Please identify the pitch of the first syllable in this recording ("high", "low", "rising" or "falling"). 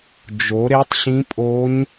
rising